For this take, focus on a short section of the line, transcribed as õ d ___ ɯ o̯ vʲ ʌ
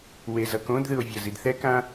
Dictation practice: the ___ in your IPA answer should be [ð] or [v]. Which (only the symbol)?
ð